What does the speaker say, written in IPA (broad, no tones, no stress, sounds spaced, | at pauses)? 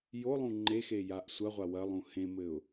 j o lˠ ũ ŋ͡ǃ e x e j a ʔ sʷ ɐ ʁʷ a w ɐ lˠ ũ h ẽ m ɘ ʊ̯